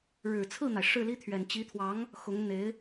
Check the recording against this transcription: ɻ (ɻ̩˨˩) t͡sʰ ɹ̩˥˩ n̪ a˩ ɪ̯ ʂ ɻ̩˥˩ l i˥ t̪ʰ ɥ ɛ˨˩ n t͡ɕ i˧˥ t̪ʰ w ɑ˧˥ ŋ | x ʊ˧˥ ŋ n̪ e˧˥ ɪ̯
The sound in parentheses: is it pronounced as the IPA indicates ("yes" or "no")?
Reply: yes